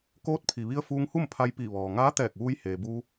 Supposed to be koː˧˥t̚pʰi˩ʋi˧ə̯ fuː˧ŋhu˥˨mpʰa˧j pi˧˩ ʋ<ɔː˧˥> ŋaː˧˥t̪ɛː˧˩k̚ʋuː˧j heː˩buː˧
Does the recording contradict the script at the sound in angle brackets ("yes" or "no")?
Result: yes